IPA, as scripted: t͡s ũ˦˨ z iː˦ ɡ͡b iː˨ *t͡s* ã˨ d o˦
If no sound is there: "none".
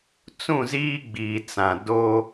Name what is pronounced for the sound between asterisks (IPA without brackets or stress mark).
t͡s